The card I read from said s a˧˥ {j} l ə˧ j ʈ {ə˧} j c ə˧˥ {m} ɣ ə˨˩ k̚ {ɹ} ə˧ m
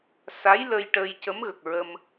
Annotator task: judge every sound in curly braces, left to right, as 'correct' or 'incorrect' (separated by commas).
correct, incorrect, correct, correct